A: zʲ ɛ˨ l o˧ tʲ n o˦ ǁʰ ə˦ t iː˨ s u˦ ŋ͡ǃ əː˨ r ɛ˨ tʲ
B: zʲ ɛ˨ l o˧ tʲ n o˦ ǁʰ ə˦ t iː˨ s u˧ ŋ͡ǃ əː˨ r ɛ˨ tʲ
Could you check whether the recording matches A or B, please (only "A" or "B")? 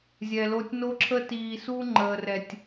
B